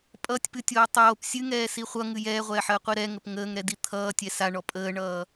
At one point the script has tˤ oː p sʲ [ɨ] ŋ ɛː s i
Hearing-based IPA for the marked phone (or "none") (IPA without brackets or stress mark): ɨ